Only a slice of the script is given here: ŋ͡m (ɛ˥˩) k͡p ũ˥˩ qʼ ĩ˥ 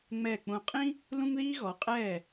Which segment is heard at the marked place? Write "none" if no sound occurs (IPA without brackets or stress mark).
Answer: ɛ˥˩